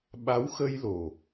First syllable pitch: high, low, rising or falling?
rising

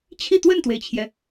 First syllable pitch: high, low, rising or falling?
falling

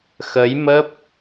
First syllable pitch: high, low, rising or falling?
rising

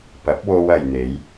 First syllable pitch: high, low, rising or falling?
rising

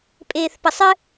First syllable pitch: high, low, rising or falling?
low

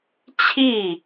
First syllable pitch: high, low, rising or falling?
falling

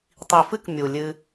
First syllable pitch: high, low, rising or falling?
low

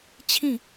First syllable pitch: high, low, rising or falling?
falling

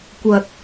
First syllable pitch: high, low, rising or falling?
low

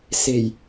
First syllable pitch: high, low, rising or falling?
low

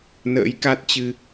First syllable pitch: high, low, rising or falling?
rising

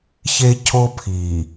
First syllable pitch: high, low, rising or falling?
high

